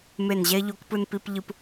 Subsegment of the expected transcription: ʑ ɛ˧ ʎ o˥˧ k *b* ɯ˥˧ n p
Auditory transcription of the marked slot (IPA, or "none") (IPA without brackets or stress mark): p